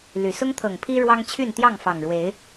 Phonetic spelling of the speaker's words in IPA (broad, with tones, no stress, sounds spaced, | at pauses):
l y˨˩ s ʊ˦ ŋ t̪ʰ ɤ˨˩ ŋ pʰ i˦ ɻ w ɑ˦ ŋ t͡ɕʰ y˥˨ n t̪ j ɑ˥˨ ŋ f ɑ˨˩ ŋ ɻ w e˨˦ ɪ̯